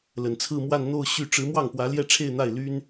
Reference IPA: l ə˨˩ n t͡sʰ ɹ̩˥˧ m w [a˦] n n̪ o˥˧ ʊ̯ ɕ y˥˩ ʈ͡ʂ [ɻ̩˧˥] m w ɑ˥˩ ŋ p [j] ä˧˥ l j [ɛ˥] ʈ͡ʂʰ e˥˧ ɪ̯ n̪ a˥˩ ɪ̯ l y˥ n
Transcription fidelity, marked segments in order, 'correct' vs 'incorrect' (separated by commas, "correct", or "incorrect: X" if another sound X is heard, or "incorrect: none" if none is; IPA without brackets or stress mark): incorrect: a˥˧, correct, incorrect: w, incorrect: ɛ˥˧